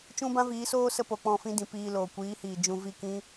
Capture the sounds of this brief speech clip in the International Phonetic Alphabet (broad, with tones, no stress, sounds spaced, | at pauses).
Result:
t͡ʃ ũ˦ b ã˦ v iː˨˦ s oː˦ s ə˧ p o˨ k͡p ɔ̃˦˨ f ĩ˦ d ĩ˨ p iː˧ l oː˨ kʷ iː˨˦ h iː˨ d͡ʒ ũ˧ v i˦˨ k ĩ˦